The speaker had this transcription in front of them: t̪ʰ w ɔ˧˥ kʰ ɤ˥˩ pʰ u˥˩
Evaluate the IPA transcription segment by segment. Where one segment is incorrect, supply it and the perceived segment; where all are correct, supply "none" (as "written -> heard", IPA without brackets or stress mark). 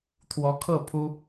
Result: u˥˩ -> u˥